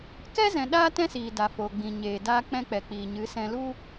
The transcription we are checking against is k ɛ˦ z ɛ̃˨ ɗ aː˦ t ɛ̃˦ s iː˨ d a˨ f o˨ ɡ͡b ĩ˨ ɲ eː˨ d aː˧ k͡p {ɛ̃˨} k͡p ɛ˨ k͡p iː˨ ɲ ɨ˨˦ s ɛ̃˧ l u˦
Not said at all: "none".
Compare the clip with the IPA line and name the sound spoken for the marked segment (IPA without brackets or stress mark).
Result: ɛ̃˧